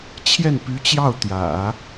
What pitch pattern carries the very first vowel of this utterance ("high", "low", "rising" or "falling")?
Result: falling